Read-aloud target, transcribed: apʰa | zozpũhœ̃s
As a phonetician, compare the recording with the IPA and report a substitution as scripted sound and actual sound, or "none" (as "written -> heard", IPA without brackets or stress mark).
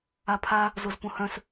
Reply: none